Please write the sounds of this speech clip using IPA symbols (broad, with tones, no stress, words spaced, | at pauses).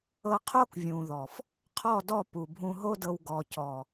ɤ˧qʰo˦kvʲũ˨ðɔ˨f | qʰɔ˦˨dɔ˦˨ pu˨ bʱũ˧ɦo˦dɤ˧w ɡɔ˨cɔ˨